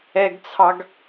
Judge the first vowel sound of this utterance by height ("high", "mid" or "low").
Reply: mid